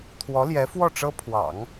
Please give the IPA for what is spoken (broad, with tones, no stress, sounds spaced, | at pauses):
t̪ʰ w ɔ˧˥ l j ɛ˧˥ f w ɔ˥˩ ʈ͡ʂ ɤ˥ pʰ w ɑ̰˨˩˦ ŋ